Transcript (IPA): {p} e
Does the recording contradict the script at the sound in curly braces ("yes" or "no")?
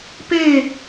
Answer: no